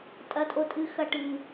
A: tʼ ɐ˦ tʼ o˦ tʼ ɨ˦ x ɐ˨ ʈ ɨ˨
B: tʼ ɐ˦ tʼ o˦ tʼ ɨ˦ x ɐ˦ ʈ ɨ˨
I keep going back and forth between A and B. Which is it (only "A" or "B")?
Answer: B